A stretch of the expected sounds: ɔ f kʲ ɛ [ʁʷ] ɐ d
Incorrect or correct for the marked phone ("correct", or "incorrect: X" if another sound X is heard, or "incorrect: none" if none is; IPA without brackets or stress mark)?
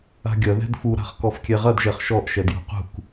incorrect: ʁ